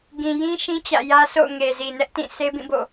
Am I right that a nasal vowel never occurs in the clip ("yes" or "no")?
no